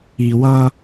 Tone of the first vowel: low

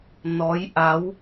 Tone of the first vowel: rising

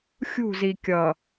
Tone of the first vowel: falling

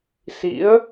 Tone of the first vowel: rising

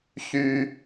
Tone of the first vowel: low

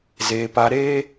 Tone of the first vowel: high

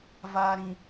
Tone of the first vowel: low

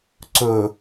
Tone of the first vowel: low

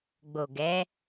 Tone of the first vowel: low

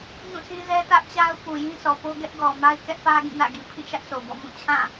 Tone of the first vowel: falling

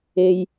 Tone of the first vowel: low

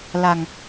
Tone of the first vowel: low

